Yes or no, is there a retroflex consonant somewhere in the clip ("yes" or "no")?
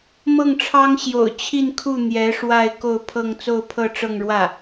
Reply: yes